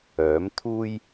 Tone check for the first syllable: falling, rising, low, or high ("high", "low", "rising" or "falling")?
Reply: rising